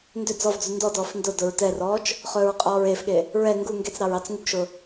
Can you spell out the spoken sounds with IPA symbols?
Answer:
n d ʏ d͡z ɔ v d͡z u n d ɔ d ɔː f n d ʊ d ʊ ɹ t ɛ r ɔː t͡ʃ | χ ɵː ɹ qʼ ɔː ɹ e f ɠ e | ɹ ɛ ŋ ɡ u ŋ ɡ e t͡s ɾ ɑ ɹ ɑ t͡s ŋ u ɡ ʃ ʊ

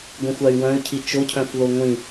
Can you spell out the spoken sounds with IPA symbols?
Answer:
ɡʷ ĩ xʷ a y̯ w œ̃ y̯ cʰ i t͡ʃ o cʰ œ̃ f ð o ŋʷ ĩ

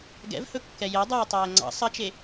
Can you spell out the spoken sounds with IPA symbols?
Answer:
ɡ ɛ̰ v h ɵ kː ɛ j e dˤ ɵː tˤ ɛː ŋ͡ǀ ɑ̰ sˤ ɐ t͡ʃ e

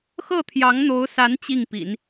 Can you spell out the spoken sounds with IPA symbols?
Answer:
x ɤ˥˩ t̪ʰ j ɑ˧˥ ŋ n̪ o˧˥ ʊ̯ s a˧˥ n t͡ɕ i˥˩ ŋ p ḭ˨˩˦ n

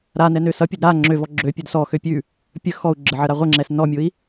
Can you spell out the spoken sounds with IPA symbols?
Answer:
ɾ a n ɛ n ø s ʌ pʲ ə d ɾ a ŋ͡ǁ ø v ɔ ɡ͡ǁ ø pʲ ʉ d s ɔ x ø pʲ ʉ | pʲ ə x ɔ u̯ ɡ͡ǁ ə ʕ ə ɾ a ʁʷ ə ŋ͡ǁ ɛ s n ɔ mʲ ʊ i̯

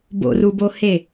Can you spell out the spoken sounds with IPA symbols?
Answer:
b o̰ r u b o h e

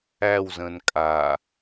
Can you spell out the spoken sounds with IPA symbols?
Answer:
æ w z ə̃ː n kʼ a

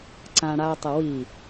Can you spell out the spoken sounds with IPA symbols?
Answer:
ǀ ã ɽ a tˤ ə w i

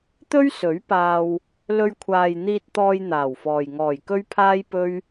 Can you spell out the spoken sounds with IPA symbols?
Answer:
t̪ ɵ˥ ɥ s ɵ˨˥ ɥ p aː˧ w | l ɵ˧ ɥ kʷʰ aː˨ j n̪ iː˧ t̚ t̪ ɔː˧ j n̪ aː˨˩ w f ɔː˨ j ŋ ɔː˨˩ j k ɵ˥ ɥ pʰ aː˥ j p ɵ˥ ɥ

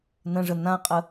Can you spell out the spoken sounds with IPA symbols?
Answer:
n ə̃ ʐ ə n ã qʼ ə

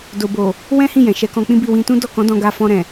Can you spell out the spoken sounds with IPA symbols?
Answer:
d o˨ b o˨ | w ɛ̃˦ h ĩ˦˨ j ɛ̃˨ ʃ ɛ˨˦ k ɔ̃˧ k͡p ĩ˦ b i˦˨ w ĩ˧ t ũ˦ d ɔ˦˨ k ɔ̃˨˦ d ɔ̃˧ ɡ a˧ f ɔ̃˧ ɾ ɛ̃˨

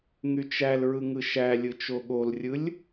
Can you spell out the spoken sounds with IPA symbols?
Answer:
ŋ y t͡ʃ æ l ɹ ɯ ŋ ɯ ʃ æ lʲ ɯ t͡ʃ o ɠ o l rʲ ɯ lʲ

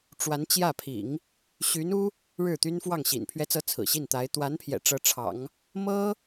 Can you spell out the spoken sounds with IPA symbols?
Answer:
ʈ͡ʂ w a˧˥ n t͡ɕ j ä˥˩ pʰ ḭ˨˩˦ ŋ | ɕ y˧˥ n u˥ | ɻ ɻ̩˥˩ t̪ y˥ n f w ɑ˥˩ ŋ ɕ ḭ˨˩ n pʰ ɥ ɛ˧˥ t͡s ɤ˧˥ t͡sʰ ɹ̩˨˩ ɕ i˥˩ n t̪ a˧˥ ɪ̯ t̪ w a˧˥ n pʰ j ɛ̰˨˩ ʈ͡ʂ ɤ˧˥ ʈ͡ʂʰ ɑ̰˨˩˦ ŋ | m ɤ˥

